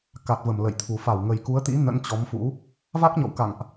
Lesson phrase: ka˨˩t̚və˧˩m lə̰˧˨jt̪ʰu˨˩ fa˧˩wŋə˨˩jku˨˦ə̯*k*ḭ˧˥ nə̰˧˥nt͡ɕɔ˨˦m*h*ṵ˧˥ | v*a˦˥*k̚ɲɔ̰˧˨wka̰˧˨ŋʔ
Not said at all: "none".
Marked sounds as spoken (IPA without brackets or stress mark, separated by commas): t̪, f, a˦˥